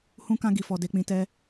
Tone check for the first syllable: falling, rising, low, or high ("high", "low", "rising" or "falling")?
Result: high